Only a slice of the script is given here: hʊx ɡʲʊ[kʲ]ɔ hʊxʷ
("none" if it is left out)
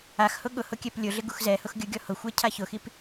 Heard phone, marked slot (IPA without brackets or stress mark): ɡʲ